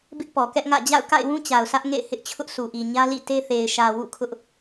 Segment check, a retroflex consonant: absent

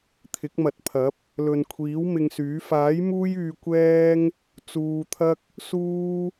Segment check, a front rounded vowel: present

